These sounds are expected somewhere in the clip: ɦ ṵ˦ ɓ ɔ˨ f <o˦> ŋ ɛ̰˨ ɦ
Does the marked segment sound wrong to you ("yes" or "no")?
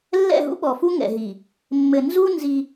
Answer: yes